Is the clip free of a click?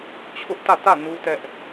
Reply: yes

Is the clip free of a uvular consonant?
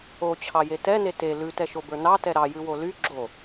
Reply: yes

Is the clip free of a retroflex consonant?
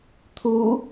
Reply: yes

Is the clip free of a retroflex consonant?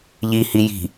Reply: yes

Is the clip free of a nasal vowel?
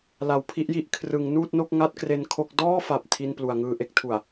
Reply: yes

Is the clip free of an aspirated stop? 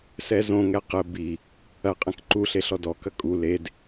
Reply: yes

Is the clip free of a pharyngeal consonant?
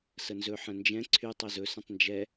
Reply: no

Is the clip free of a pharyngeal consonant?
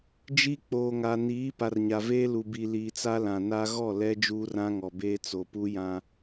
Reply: yes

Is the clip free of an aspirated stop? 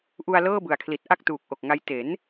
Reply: no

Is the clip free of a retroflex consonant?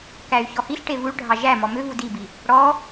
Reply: no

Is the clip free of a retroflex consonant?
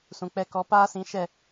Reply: yes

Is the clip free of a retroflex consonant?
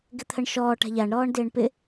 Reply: no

